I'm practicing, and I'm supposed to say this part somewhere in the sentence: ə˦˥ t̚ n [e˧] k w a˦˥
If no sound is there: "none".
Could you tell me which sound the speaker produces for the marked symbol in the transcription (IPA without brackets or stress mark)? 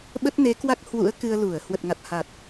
e˨˦